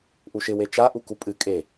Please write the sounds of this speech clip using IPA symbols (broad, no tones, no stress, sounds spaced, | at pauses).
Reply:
ʔ u ʃ ɪ w e t͡ʃ a ʔ u k u pʼ ɨ kʼ e